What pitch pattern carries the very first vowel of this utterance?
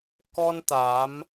high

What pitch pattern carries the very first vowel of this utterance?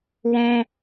high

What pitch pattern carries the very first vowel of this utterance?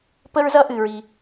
high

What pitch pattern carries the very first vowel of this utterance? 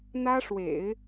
high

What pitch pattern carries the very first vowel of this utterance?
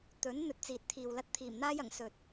rising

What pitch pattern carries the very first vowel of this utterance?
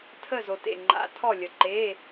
falling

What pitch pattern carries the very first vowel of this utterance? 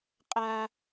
high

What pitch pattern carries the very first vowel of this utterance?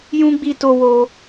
high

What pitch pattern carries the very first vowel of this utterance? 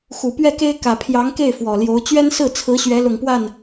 low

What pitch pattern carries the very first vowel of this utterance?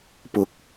rising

